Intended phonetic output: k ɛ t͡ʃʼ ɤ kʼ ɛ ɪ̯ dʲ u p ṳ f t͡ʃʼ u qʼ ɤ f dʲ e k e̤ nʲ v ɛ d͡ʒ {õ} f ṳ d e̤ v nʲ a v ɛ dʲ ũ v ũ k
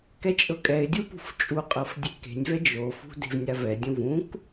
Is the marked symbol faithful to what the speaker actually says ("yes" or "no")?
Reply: no